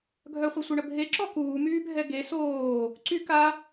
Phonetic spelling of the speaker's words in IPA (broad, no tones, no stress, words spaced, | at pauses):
ɡʱœχʷesʷœɳə bʱeǁɔ kuːmyːbʱɛ ɡe soː | ǀy ka